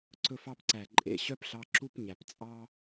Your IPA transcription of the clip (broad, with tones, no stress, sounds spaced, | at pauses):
ǀ ɵ˧ f ɑ˧ p ǀ æ˩ ǃʼ ḛ˩ ɕ œ˥ p ɬ ɑ˧ ǁ u˥ p ɲ æ˩ p t͡sʼ ɑ˥